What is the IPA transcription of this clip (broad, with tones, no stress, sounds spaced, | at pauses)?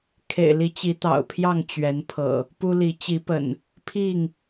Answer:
kʰ ḛ˨˩ ɪ̯ l i˨˦ t͡ɕ i˨˦ t̪ ɑ̰˨˩ ʊ̯ pʰ j ɑ˥˨ ŋ t͡ɕ ɥ ɛ˨˦ n pʰ ɤ̰˨˩ | p u˦ l i˨˦ t͡ɕ i˨˦ p ə̰˨˩ n | pʰ i˥˨ ŋ